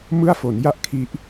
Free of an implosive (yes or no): yes